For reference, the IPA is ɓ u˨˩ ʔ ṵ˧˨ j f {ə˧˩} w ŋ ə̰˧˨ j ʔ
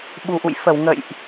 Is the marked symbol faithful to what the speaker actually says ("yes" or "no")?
yes